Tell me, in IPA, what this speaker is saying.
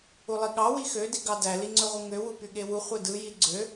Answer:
ulˠiɠɑ wixø diɡɑdæ liŋ͡ǀøʁʷɯŋø wupyɠewu χʷedɯ jiɡ͡ǀø

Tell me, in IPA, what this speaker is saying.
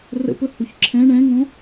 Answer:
rə̰pɵ huçǁʰɛ̃ ɳɛ̃ŋõ

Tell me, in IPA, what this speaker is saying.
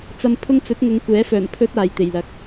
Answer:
t͡sɐ˧mpʰʊ˥ŋ t͡sɵ˨˥t̚ŋʊ˨˧ŋkʷɛː˨˥fœː˨˩n pʰɵ˨t̚ aː˨jt̪e˨˩jlɐ˨˥k̚

